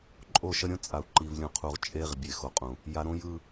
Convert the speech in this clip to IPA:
ǃʼ o˦˨ ʃ ʌ˦ ɾʲ õ˦ t͡sʼ a˨ u̯ ǃ i˨ v lʲ ũ˨ qʰ u˨ ʁ t͡ʃʼ e˦ ʁ bʲ e˨ x o˨ qʼ ũ˨ | j a˨ ɾ õ˦ j ɯ˦

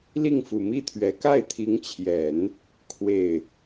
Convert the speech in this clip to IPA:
l i˥˩ ŋ f u˨˩ m i˥˩ t̪ʰ ɥ ɛ˧˥ k a˥˩ ɪ̯ t̪ʰ i˧˥ ŋ t͡ɕʰ j ɛ˨˩˦ n | kʰ w e˥˩ ɪ̯

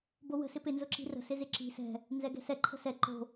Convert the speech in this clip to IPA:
b o w ə̤ s ɪ p ɪ n z ʊ ǁ i̤ r ə̤ s ɪ z ɪ ǁ i̤ s ɛ̤ | n z ɛ ɡ ɛ̤ s ɛ ǃʰ ə̤ s ɛ ǃ o̤

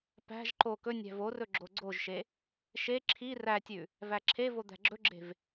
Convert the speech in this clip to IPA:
p æ̤ ʒ ǃ o k ɵ nʲ æ̤ v o r ɵ ɡ͡ǁ o ɡ͡ǀ o ʒ ʃ e | ʃ e ǁʰ i r æ tʲ ʉ | v æ ǁʰ e v o d̪ æ̤ ɡ͡ǁ ɵ ɡ͡ǁ e̤ v

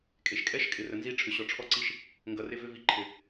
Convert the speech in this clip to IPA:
kʼ e˨ ʃ kʼ ɛ˦ ʃ kʼ ɪ˨ r ə˨ n z i˧ ʈ͡ʂʰ ʏ˨ ɕ ɔ˨ ʈ͡ʂʰ ɔ˦ ǀ i˦ ʃ | ŋ ɡ ʌ˨ r ɪ˧ v ʏ˧ v i˨˦ ǃʰ ɪ˨

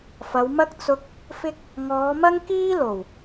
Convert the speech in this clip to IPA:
f ɐ˨˧ w m ɐ˥ k̚ t͡s ʊ˧ k̚ | f ɪ˥ k̚ | ŋ ɔː˨˧ m ɐ˥ ŋ k iː˥ l o˨˩ w

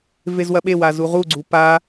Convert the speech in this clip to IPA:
v e z w ɐ ɓ e w a z u ʁ u ɡ͡ǀ u p a

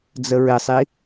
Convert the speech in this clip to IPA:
d͡z ə ɹ ɪ sˤ i

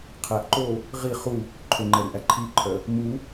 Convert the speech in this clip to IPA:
qʰ æ ʔ ǃ o | ʁ i χ u | ǃʰ ø ŋ͡ǃ ɛ ɾ y ʔ æ ǃʰ i ǃʰ œ | m u

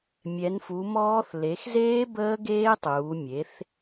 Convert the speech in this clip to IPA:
mʲ ɛ˩˧ n f u˩˧ m ɔː˦˥ θ l e˩˧ x z eː˦˥ b əː˦˥ ɡ eː˦˥ tˤ uː˩˧ mʲ e˩˧ θ

